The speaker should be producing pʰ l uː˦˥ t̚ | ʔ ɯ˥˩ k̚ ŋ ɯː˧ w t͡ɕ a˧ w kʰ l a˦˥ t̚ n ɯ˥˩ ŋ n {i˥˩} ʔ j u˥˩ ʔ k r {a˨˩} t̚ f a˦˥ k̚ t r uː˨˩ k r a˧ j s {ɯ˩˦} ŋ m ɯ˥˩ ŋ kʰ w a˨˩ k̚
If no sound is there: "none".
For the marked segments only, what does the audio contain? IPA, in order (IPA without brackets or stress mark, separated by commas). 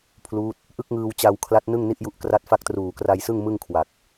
i˥˩, a˥˩, ɯ˥˩